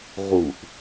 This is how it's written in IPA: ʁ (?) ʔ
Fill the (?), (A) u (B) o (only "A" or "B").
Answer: A